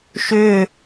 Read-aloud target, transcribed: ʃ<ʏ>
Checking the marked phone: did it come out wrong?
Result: no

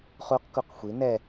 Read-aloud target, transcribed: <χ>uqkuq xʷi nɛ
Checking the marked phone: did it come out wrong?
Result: no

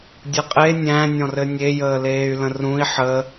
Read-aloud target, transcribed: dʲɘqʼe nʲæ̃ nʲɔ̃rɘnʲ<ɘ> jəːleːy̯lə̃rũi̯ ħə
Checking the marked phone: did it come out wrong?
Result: yes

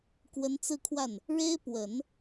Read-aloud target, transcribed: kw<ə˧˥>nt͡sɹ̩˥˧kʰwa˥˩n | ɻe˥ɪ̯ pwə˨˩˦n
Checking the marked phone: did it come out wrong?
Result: no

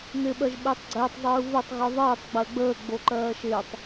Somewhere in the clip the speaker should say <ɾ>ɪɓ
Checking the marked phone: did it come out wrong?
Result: yes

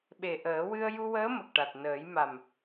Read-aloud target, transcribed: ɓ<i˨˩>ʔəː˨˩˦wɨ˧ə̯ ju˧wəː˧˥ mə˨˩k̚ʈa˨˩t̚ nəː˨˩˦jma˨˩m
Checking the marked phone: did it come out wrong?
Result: yes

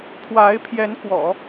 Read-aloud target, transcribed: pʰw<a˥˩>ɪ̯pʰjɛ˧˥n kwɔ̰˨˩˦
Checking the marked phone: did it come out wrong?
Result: yes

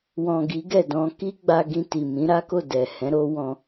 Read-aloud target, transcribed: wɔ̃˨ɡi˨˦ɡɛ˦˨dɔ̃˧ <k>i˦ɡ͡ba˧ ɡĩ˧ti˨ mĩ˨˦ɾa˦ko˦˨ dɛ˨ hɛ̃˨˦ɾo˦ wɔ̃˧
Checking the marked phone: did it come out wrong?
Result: no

